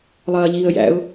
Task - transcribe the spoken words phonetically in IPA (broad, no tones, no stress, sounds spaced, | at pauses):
lˠ ɐː ʎ iː ə̯ j æ̰ ʊ̯